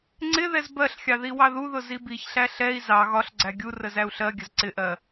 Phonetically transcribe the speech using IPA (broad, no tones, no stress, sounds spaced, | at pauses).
ŋ͡ǀ ɪ ð ɛ z b ɜ ɬ xʲ ɑ ð i w ɑ ð u ð ʊ z i b i ç ɬ æ ɬ ɛ i̯ z ɑ ɣ ɒ ɬ ɡ͡ǀ æ ɡʲ u r ə z æ u̯ ɬ ɜ ɡʲ ə z ǀ ɪ ʔ ɜ